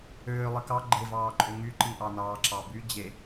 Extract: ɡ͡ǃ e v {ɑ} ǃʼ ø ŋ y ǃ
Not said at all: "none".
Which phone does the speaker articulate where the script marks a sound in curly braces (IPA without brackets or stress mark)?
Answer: ɑː